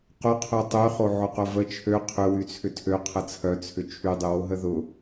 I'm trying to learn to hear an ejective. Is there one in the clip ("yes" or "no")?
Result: no